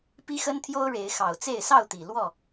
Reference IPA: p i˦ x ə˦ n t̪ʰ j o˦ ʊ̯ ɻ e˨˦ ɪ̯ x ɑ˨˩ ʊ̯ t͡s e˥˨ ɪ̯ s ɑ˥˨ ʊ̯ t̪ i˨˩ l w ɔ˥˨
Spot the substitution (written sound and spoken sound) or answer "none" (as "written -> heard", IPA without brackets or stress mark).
none